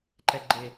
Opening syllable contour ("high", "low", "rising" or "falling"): low